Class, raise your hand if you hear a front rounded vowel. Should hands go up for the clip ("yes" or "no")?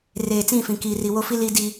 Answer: no